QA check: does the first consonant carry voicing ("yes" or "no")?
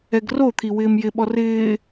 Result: yes